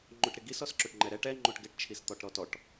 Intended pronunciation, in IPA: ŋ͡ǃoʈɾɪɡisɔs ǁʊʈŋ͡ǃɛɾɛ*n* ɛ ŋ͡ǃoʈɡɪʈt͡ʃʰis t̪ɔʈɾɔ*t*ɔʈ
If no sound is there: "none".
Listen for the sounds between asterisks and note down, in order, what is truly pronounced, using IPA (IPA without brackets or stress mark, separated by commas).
ʈ, t